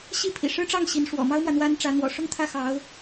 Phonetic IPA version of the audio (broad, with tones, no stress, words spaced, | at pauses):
ɕi˥˩pʰḭ˨˩ʂɻ̩˥ʈ͡ʂɑ˥˩ŋ ɕi˧˥n ʂwɔ̰˨˩mɑ˥ʊ̯mwä˨ n̪wa˥nʈ͡ʂä˧˥ n̪wɔ̰˨˩ʂʊ˥˧ŋt̪ʰä˥˩ xɑ˧˥ʊ̯